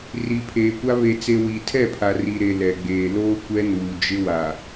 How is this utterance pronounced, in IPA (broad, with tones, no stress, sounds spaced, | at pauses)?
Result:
r i˨ pʰ eː˨ kʷ a˦ β e˨ t͡s e˨ w i˨ tʰ ɛ˦˨ pʰ a˨ r i˨ ɾ e˨ l ɛ˨ ɡ͡b eː˨ l oː˦ kʷ ɛ˦ n uː˨ d͡ʒ ɪ˦ w a˨